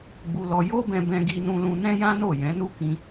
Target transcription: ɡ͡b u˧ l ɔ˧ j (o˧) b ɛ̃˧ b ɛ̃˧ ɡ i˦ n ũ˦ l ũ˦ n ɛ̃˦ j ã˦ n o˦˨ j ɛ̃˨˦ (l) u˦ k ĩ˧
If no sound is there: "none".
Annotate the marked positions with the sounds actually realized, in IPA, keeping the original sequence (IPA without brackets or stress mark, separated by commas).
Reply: o˦, n